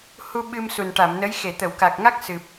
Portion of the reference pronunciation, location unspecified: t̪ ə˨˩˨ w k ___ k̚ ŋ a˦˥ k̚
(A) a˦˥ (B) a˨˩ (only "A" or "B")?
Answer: B